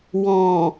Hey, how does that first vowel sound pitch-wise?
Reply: low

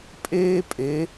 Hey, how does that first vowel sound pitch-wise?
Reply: high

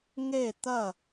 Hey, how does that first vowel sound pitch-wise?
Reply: falling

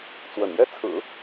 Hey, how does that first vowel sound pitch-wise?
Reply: low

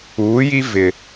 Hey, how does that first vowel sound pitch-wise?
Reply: rising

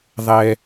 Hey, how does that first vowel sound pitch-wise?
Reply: low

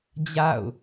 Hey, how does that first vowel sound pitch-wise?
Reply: falling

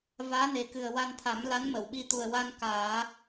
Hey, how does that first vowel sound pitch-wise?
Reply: rising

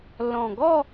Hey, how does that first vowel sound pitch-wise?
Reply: low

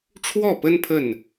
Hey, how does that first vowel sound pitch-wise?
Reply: falling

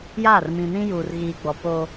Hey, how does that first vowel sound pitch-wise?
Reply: falling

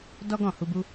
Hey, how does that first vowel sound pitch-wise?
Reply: high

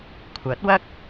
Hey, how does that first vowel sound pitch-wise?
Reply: rising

